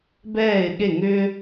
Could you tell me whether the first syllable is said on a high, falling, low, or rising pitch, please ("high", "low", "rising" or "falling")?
falling